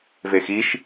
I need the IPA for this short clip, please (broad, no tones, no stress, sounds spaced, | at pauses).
v e x i ʃ